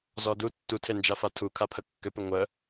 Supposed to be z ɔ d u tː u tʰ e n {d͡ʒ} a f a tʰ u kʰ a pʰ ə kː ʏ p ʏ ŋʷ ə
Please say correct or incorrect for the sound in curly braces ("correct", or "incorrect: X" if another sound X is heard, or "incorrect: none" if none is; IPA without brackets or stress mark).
correct